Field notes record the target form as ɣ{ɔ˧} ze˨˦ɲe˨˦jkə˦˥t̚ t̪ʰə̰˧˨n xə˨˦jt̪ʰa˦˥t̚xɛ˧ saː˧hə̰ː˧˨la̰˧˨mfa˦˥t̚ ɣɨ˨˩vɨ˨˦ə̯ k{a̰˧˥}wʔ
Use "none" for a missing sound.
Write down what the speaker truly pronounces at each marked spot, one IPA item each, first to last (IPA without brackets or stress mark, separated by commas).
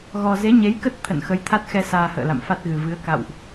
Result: ɔ˧, a̰˧˨